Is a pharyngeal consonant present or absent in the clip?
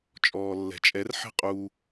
present